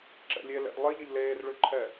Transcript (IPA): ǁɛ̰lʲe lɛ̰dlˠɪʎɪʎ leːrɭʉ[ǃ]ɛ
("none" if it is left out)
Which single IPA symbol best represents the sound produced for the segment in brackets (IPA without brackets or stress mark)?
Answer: ǃʰ